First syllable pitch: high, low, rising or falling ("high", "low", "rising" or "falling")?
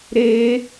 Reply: high